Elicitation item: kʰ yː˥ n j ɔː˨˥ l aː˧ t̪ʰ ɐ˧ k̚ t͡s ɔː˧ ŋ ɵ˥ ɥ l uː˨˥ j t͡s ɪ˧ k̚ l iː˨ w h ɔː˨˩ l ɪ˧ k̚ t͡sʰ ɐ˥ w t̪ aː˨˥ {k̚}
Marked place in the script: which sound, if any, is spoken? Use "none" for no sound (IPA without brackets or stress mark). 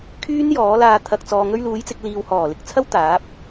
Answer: p̚